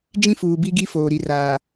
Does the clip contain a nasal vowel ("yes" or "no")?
yes